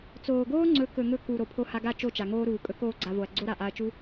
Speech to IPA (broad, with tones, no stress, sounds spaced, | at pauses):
t͡s oː˨ ɡ oː˦ ŋ͡ǀ ɵ˨˦ k ɵ˨ ŋ ɵ˧ k u˨ ɾ o˨ pʰ o˧ h a˧ ɡ a˦˨ t͡ʃ o˦˨ t͡ʃ a˨ ŋ oː˦ ɾ uː˨ kʼ ɵ˦ k oː˦ ɡ͡ǀ a˧ v o˨ ɐ̯ ɡ͡ǀ o˦ ɾ a˨ ʔ a˧ ɐ̯ t͡ʃ u˦